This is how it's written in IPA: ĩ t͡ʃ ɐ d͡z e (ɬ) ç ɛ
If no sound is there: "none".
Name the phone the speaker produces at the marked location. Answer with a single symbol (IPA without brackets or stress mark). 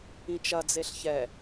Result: ɬ